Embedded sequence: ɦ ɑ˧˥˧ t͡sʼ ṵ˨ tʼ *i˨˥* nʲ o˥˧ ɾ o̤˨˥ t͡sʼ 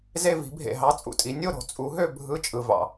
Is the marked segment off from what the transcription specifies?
no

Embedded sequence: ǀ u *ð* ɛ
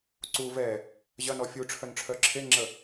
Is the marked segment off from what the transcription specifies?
yes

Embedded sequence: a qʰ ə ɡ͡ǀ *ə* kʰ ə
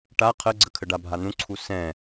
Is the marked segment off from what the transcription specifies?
no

